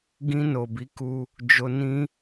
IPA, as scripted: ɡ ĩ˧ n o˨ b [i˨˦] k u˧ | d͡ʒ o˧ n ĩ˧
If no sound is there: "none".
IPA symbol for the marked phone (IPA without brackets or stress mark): i˨˦